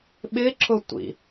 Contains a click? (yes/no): yes